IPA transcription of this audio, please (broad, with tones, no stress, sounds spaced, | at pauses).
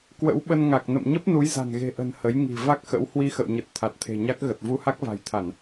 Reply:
k w ə̰˧˥ w ɓ ə˧ n ŋ a˨˩ k̚ n ə̰˧˨ m ɲ ə˦˥ p̚ n u˨˦ j z a̤˨˩ n ɣ e̤˨˩ ʔ ə̤˨˩ n h ə˨˦ j ŋ i̤˨˩ v a˦˥ k̚ x ə̰˧˥ w h w i˧ x ə̰˧˨ w ɲ ə˨˩ t̚ t̪ʰ a˨˩ t̚ t̪ʰ e̤˨˩ ɲ a˦˥ k̚ ɣ ə˨˩ t̚ v u˧ h a˦˥ k̚ v a̤˨˩ j t̪ʰ a˧˩˨ n